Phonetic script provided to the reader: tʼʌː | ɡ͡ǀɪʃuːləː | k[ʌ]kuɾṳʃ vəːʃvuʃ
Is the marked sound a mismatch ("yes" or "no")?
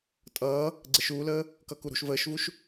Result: no